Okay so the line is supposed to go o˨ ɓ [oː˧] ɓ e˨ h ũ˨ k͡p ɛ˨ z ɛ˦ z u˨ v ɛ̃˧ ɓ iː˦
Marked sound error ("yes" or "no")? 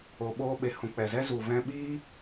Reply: no